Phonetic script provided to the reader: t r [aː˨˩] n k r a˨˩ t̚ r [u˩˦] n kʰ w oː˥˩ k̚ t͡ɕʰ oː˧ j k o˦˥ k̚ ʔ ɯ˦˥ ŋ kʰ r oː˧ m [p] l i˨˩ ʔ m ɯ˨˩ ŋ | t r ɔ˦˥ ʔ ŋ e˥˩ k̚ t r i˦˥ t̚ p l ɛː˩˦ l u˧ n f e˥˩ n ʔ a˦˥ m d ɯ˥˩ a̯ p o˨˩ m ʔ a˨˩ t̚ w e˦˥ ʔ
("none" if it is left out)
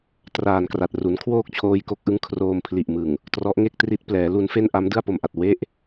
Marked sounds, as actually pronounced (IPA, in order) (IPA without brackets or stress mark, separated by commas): aː˨˩, u˩˦, pʰ